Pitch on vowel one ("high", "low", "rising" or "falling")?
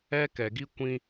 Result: high